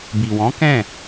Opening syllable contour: low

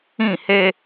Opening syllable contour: falling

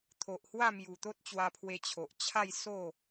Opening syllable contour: low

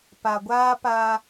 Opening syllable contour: low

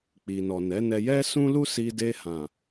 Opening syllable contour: low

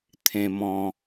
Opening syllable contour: low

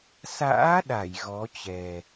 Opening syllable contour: rising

